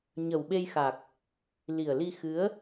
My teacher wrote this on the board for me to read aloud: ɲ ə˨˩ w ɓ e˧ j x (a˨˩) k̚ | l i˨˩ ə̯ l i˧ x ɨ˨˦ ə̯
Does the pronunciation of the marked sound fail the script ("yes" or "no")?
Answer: no